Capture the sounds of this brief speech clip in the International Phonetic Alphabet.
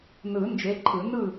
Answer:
nɯ˨˩˦ nd͡ʒe˨˥ǃʰɯ˨˩˦nɯ˥˨

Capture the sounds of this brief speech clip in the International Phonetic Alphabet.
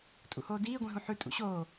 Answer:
tʼṵhoːdiː ɡʷĩɦũħʉ tʼṵɕoː

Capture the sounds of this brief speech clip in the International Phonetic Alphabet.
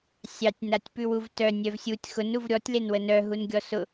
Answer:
sʲɑtʲ natʲpʉwuvtœ nʲœvsʲutʲ xʊn uvɾʲɔtʲ lenwənœ ɦunɡʲɔsʊ

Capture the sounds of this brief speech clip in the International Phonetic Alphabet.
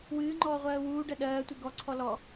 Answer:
wɨːŋ͡ǃɔː ʁʷɜːwuːɖɜ ɗɜːtʷi ɡɔǀʰɔ lɔ

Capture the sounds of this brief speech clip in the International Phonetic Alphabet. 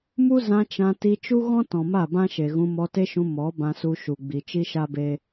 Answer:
mu˦zã˧ t͡ʃã˧ ti˧t͡ʃu˦ɣɔ̃˦ tɔ̃˨ma˦˨bã˦ʃe˨ ɣũ˧mɔ˧te˦ʃũ˧ mɔ˨˦ bã˧su˧ ʃu˨ɡ͡bi˨ t͡ʃi˦ʃa˦be˦

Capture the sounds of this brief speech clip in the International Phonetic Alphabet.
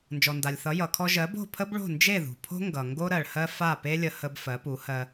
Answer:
nd͡ʒɔ˩nda˩lʲθʌ˩˥ jʌ˩kʰɔ˧ ʒɜ˩˥bo̤˥˩ pʰə˥bɭo̤˥˩ nd͡ʒe˥˩ðṳ˩ pʰo̤˥ ŋɡʌ˩ ŋɡo˥ɾɜ˩ɭhɜ˥ fa˥˩pe˥lʲə˧ hə˧b fɜ˩˥pu˩˥hɜ˧

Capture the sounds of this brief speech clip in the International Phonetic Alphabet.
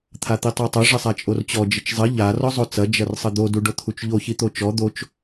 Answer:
t̪ʰat̪itˤatˤo ʐɘsˤat͡ʃʼort͡ɕɔ d͡ʒɘt͡ʃzˤɘ ʎa rɔzˤot͡sɐ d͡ʒɐrsˤɘd̪o duɖot̪ʰut͡ʃʎo çit̪ot͡ʃɔ d̪ot͡ʃ

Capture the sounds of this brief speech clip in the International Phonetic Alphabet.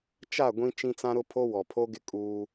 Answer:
t͡ʃa˦˨ ɡʷĩ˦ t͡ʃĩ˦t͡sã˦ɾʊ˦pʰo˦ wɔ˨pʰo˦ɡɪ˦ kʼuː˦

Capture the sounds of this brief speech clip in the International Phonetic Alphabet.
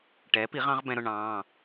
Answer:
ʈɛː˩˥pi˩˥ʁɑ̃˩˥ʁ bɛ̃˧ɾʊ˧ ɳɑ̃ː˩˧˩

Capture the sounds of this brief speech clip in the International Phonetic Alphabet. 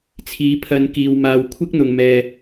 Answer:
t͡sʰiː˨˥pʰɐ˧nkiː˨w maː˨wkʷʰɪ˥k̚n̪ʊ˨ŋmɛː˨

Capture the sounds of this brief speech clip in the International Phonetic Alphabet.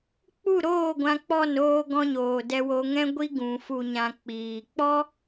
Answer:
k͡pu˦˨ɾoː˦˨ ɡʷã˧k͡pɔ˦˨noː˧ɡɔ̃˧ ɲoː˨dɛ˧wo˧ŋɛ̃˦ ɡʷi˦ ɡũ˨ fu˨ɲã˨ k͡piː˨ k͡pɔ˦

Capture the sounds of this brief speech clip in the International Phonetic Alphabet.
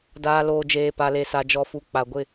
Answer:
daː˨loː˨ d͡ʒeː˨pa˨le˨sa˨ d͡ʒɔ˨fu˨ k͡pa˨ ɡʷɪ˦˨

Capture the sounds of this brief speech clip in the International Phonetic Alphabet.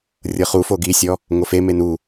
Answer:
rʲɤχufo ɡisʲɔ | ŋofe menu

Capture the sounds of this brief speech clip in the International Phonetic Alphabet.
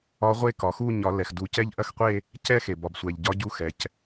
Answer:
ɒ˧˥ʁʷe˥˧kɒ˩xu˥˧ ɲɒ˨˩˦lɛ˩xdu˨˩˦ cɛ˥˧ʎʔɐ˥˧xqʷe˥˧ | cɛ˥˧xe˩bɒ˩bsʷɛ˩ʎ ɟɒ˧˥ɟu˧˥xɛ˩c

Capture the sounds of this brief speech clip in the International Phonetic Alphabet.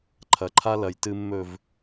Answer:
ǃʰɐ˨˦ǃʰa˦lɐ˨j tɨ˨mːɵ˨v

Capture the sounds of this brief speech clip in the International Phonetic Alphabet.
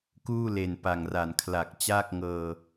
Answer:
kuː˥˩le˨˩n pa˨˩ŋra˨˩n kʰla˨˩k̚t͡ɕaː˥˩k̚ŋɤː˧

